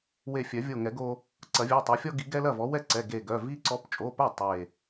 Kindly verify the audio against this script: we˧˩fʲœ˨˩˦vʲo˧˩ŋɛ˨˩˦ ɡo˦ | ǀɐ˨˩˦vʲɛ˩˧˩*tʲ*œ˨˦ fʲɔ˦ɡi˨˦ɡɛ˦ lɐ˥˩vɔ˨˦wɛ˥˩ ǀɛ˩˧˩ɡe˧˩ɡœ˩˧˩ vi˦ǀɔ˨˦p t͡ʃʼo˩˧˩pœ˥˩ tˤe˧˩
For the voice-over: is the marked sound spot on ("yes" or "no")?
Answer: no